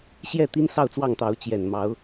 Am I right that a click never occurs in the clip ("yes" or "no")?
yes